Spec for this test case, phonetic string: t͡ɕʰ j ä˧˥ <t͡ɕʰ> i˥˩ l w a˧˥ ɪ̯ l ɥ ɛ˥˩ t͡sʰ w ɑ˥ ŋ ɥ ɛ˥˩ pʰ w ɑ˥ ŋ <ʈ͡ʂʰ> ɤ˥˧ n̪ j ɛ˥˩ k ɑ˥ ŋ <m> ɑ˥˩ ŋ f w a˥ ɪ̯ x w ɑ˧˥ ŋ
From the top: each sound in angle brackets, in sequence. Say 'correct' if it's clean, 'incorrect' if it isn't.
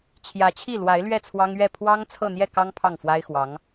correct, incorrect, incorrect

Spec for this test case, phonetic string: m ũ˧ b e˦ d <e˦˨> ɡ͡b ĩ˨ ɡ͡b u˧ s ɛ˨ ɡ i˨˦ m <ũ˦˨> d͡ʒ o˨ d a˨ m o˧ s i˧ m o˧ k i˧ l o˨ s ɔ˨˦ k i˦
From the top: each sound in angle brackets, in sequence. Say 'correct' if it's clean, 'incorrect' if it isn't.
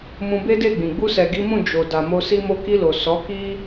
correct, correct

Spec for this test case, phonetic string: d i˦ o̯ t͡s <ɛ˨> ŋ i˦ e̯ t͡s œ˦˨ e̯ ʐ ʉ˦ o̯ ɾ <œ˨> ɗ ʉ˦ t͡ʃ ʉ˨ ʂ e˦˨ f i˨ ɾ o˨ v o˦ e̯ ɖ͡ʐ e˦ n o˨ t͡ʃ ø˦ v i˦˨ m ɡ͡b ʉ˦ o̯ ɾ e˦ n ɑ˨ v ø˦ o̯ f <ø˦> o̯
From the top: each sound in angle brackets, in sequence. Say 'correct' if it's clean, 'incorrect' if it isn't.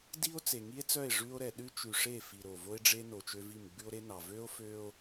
incorrect, incorrect, correct

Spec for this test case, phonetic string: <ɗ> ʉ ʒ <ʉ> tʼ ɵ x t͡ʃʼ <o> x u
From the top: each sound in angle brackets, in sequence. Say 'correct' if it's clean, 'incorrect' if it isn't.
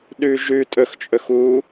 correct, correct, incorrect

